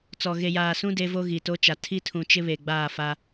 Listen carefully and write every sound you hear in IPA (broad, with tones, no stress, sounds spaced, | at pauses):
t͡s ɔ˨ ɣ e˨ j aː˨ s ũ˦ d e˦ v o˦ ɣ i˨ t o˦ t͡ʃ a˨ tʰ i˦ tʰ ũ˨ t͡ʃ ɪ˦ β e˨ ɡ͡b aː˦˨ f a˦